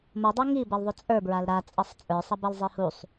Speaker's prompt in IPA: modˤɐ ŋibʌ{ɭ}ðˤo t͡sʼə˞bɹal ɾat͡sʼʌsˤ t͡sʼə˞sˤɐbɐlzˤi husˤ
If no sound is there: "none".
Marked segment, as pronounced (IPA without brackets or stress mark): l